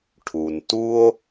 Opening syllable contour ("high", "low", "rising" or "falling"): low